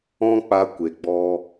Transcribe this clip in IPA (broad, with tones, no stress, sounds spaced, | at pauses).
ɔ̃˦ k͡p a˧ kʷ e˨ ɡ͡b ɔ˧